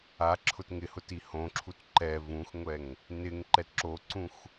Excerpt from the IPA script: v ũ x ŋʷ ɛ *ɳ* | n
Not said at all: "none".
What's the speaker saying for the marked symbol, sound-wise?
ŋ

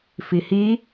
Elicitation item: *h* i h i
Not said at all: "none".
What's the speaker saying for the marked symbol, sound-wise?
f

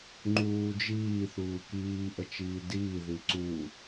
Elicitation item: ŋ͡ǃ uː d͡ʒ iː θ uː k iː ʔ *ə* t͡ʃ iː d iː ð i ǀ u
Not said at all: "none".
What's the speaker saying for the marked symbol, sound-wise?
ə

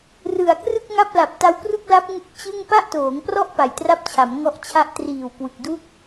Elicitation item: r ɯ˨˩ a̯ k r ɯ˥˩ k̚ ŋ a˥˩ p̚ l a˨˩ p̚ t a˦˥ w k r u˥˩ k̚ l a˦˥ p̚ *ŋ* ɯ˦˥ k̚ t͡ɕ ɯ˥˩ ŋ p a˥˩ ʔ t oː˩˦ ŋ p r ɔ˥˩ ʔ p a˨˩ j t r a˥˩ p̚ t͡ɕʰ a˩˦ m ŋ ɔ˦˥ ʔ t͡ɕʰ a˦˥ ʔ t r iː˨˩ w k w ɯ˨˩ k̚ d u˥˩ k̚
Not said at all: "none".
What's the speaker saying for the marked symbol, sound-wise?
ŋ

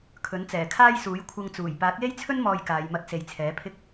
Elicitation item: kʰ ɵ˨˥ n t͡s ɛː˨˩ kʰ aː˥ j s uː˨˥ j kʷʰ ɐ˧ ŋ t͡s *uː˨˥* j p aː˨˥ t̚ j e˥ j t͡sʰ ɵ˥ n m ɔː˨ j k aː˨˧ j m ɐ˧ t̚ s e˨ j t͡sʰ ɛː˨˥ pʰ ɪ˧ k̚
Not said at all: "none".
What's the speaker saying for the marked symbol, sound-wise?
uː˨˩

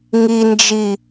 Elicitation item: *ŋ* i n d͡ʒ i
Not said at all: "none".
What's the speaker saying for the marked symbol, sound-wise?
ŋ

